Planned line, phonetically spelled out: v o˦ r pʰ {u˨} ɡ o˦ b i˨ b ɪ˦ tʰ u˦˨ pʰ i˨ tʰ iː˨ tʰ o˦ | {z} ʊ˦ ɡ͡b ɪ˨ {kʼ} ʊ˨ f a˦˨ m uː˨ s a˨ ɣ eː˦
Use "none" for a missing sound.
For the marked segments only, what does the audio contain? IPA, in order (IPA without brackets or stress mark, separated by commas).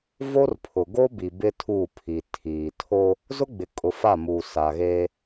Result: ʊ˨, z, kʼ